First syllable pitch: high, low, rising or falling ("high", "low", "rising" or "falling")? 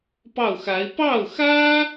falling